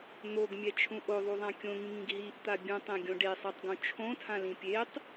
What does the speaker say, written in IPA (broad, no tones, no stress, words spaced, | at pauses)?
n̪oɡmʲɛt͡ʃʰũ ʔoðˤuðˤã kʲõŋĩŋĩɡ ɦiʔt̪a bʲũtˤẽɡʲõ ɖesˤɛtˤɡõ t͡ʃʰõtʰãlĩ pʲetˤ